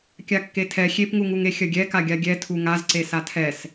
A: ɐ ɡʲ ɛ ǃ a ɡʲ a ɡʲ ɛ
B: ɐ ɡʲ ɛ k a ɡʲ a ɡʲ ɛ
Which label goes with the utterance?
B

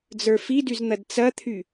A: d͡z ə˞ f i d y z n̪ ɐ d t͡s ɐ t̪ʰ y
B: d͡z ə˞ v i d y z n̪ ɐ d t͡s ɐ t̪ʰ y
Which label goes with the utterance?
A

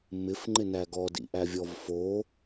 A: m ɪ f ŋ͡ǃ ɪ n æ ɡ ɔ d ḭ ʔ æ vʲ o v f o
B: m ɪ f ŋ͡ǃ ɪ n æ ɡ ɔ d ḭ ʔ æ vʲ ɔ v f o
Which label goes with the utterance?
B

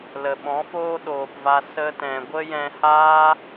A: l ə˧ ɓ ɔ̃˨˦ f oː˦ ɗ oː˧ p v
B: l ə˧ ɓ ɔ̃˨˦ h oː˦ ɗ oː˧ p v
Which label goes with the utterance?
A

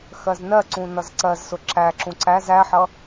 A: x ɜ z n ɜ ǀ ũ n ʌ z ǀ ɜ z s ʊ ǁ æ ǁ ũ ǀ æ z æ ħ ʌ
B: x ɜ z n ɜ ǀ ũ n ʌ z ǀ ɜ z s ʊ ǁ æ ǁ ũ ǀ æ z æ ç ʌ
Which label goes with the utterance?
A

